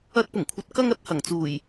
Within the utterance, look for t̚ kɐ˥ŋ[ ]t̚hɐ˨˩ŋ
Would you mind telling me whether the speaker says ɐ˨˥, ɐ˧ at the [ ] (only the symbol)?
ɐ˨˥